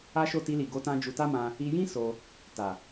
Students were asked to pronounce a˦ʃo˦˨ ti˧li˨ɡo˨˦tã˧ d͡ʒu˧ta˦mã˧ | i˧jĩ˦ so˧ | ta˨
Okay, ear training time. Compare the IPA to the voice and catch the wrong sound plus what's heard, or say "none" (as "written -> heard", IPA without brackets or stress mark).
none